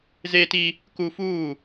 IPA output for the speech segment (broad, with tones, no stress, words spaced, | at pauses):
zeː˦ti˦ | ku˦fuː˦˨